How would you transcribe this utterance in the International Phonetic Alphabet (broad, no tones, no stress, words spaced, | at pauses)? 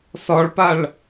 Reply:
sɒɭpaɭ